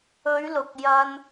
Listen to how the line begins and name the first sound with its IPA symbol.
ɵ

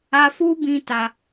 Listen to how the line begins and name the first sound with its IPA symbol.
a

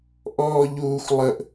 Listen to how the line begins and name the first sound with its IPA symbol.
ʔ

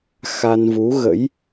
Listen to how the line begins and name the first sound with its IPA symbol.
x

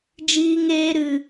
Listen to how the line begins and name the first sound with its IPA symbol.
d͡ʒ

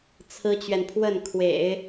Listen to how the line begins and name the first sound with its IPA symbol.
t͡sʰ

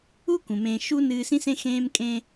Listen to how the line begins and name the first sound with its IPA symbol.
u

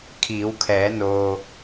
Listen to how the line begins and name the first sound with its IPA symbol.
kʰ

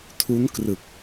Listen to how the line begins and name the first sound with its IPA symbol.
tʰ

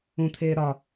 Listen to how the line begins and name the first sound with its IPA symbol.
ũ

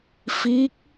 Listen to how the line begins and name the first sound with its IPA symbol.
f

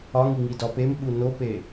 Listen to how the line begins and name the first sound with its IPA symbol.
ɒ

